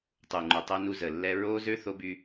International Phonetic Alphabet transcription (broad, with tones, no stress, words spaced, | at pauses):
tˤu˨ŋ͡ǃu˨tˤɛ˦nu˦ zə˨lːɛ˦ ɹo˦zø˦ θo˦by˦